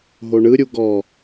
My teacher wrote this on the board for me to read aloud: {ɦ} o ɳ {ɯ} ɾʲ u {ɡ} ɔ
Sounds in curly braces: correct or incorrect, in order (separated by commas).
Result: correct, correct, correct